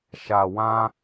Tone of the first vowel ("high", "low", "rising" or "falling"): low